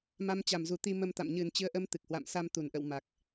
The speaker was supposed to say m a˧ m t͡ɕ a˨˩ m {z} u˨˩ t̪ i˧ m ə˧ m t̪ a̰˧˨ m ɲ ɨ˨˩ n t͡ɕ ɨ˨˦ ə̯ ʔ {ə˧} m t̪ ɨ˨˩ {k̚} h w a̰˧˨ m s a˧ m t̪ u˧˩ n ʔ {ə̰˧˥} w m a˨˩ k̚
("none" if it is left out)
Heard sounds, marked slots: z, ə˧, k̚, ə̰˧˨

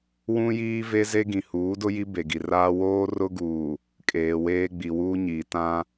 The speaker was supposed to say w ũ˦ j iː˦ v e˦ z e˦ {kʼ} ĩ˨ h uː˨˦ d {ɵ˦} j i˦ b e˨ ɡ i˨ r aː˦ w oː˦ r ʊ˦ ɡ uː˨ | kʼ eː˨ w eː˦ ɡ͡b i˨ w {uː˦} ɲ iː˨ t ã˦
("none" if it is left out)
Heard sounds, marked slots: ɡ, ʊ˦, uː˦

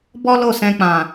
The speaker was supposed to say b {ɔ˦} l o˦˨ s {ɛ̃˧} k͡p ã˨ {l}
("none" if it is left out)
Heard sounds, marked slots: ɔ˦, ɛ̃˧, none

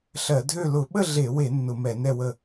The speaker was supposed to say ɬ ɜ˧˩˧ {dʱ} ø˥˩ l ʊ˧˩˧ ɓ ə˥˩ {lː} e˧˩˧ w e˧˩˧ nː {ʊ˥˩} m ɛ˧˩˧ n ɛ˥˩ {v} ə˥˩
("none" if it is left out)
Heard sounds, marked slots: dʱ, ɮ, ʊ˧˩˧, w

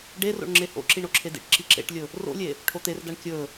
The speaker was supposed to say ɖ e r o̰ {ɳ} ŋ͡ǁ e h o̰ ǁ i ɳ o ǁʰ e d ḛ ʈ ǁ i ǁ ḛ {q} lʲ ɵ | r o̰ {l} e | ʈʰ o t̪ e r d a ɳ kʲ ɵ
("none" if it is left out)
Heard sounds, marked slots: ɳ, ʈ, lʲ

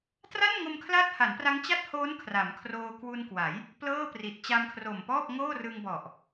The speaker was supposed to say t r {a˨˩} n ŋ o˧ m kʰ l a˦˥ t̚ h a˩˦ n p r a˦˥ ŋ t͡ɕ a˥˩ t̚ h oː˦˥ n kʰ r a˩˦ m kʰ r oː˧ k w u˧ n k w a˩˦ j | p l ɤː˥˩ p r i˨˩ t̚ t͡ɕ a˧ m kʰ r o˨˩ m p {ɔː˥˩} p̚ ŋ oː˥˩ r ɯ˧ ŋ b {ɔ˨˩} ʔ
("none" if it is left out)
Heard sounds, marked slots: a˥˩, ɔː˥˩, ɔ˨˩

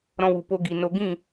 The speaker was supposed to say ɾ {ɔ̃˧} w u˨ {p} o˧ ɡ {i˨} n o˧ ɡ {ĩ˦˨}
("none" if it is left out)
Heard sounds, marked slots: ɔ̃˧, p, i˨, ĩ˦˨

